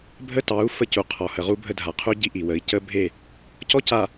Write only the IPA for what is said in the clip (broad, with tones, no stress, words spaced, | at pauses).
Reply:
bʱə˦tɑ˨˦u̯ fə˦cu˨qʰɔ˨ hə˨ʁu˦bʱə˦dʱa˨ qʰu˦ɟi˦ʔi˨wə˨˦i̯ cə˦bʱe˦˨ | cɔ˦ca˨